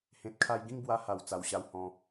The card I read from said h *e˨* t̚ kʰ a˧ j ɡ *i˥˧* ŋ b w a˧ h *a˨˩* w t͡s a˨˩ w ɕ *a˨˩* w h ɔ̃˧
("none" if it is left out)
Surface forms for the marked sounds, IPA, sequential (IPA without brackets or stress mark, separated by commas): ẽ˨, ĩ˥˧, a˨˩, a˧